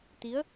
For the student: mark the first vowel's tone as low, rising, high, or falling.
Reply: rising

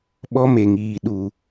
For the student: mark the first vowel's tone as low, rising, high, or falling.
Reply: high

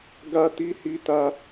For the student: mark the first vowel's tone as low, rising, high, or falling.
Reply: high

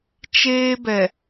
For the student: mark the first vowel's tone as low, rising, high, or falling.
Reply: high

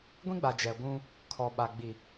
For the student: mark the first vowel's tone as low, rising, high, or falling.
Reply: high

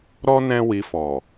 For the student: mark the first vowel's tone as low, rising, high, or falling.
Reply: high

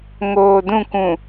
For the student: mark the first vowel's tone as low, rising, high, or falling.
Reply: low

